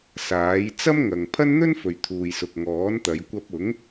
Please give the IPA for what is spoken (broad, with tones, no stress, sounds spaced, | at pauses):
s aː˨˥ j t͡s ɐ˥ m ŋ ɐ˨ ŋ pʰ ɐ˥ n n̪ ɵ˥ n f ɵ˨ ɥ t̪ʰ uː˨ j s ʊ˨ k̚ ŋ ɔː˨˥ n t̪ ɐ˨˧ j kʷ ɐ˧ p̚ ʊ˨˥ ŋ